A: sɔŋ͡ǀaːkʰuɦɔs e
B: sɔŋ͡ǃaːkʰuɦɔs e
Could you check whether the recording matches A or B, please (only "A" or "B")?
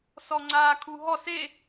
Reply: A